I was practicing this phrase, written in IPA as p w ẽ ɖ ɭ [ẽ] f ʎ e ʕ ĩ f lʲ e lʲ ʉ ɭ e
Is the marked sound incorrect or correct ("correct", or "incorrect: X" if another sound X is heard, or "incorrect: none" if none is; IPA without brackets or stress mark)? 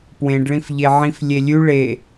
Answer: incorrect: ĩ